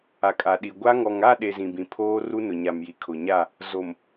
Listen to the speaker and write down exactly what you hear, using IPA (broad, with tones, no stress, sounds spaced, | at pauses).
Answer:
a˨ kʼ a˨ ɗ i˨ ɡʷ a˦ ŋ ɔ˨ ŋ a˦˨ ɗ e˨ z ĩ˨ b ĩ˨ pʰ oː˦ r u˦ n ʊ˨ ɲ a˨ m j i˨ kʰ ʊ˨ ɲ a˦˨ | z o˨ m